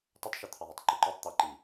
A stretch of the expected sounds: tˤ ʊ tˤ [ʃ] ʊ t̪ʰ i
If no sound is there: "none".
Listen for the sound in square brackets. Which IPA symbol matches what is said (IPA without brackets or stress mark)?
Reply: ʃ